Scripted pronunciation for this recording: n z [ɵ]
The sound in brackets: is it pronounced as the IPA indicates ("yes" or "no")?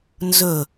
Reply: yes